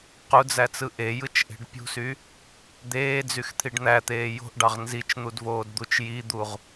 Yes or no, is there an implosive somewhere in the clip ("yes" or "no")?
no